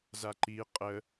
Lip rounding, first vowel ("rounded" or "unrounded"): unrounded